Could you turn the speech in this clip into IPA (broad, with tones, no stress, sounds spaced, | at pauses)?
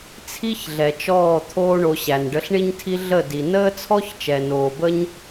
t͡sʰ i˦ ç ɮ ɛ˨ t͡ʃ ɔː˦˨ t̪ʰ oː˦ ɳ o˧ ɕ æ˨ n ɖ ə˧ ɬ ɳ i˦ ɲ tʰ i˦ ɮ ə˦˨ d i˨ n əː˦ t͡sʰ ɔ˦ ç t͡ʃ ɛ˨ n oː˨ b ə˦ ɲ